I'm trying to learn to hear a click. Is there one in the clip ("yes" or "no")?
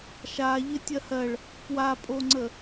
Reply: yes